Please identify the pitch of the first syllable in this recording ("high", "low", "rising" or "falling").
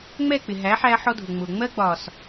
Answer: falling